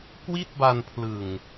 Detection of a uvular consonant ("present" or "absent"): absent